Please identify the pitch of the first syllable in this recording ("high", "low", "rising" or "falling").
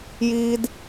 high